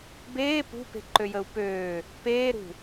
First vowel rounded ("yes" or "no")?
no